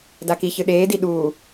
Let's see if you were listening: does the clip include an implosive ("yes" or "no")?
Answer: yes